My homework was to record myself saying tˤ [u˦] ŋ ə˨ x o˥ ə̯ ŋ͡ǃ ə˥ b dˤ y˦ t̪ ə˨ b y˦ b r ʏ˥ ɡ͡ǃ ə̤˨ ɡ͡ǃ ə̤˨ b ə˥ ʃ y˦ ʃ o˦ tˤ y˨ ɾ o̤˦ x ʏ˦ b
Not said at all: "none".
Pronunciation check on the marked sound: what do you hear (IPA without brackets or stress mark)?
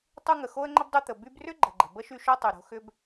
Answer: u˦